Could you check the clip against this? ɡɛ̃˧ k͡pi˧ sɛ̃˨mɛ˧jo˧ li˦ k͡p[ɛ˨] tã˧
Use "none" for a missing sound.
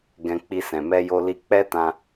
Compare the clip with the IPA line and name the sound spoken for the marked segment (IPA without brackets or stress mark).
ɛ˦